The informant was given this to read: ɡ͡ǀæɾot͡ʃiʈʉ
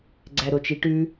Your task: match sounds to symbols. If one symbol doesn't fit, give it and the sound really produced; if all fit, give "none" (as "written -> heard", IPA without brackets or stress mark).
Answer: none